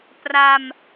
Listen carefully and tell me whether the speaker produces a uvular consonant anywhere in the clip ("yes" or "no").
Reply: no